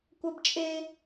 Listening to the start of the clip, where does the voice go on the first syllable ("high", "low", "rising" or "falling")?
high